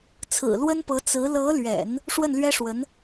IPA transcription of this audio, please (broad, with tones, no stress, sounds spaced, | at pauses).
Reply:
t͡sʰ ɹ̩˨˩ l w ə˥ n p ɤ˧˥ t͡s ɹ̩˧˥ l ɤ˧˥ l ɥ ɛ̰˨˩˦ n | ʂ w ə˥˩ n l ɥ ɛ˥ ʂ w ə˧˥ n